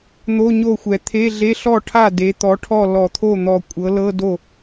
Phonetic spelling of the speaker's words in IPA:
n̪o˧˥˧ɲo˥˩xʷɛ˨ t̪ʰe˧˥˧ɮe˧˥˧ ɬɔ˥˩ʈʰa˥˩ de˩˥t̪ɔ˩˥ʈʰɔ˥˩ lɔ˨˩˦t̪ʰo˥˩n̪ɔ˨˩˦ kʷʼɤ˩˥lɤ˧˥˧ do˥˩

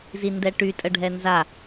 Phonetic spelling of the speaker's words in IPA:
zindɛʈy tʼəɖʱɛnza

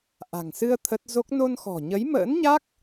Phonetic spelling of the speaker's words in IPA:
ʔa̤˨˩ŋsɨ˧ə̯ t̪ʰə˦˥t̚ zo˦˥k̚ no˧nxɔ̤˨˩ɲə˨˦jmə̰ː˧˥n ɲa˦˥k̚

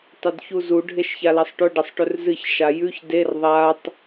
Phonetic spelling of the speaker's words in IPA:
tˤɵdçuzu ɖʱeʃçalɐsˤʈɵ ɖɐsˤʈɵrzɨç ʃajʉç der ðˤatˤ

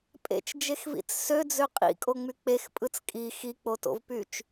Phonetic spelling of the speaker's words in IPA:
pʼḛt͡ʃd͡ʒexvḭt͡s sød͡zø qʼḭkʼoŋ͡my k͡pexpʼɯt͡s kʼi xik͡poto̰vpyt͡ʃ

